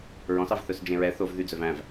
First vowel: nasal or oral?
nasal